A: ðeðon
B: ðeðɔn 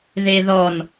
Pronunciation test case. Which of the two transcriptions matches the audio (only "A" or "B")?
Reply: B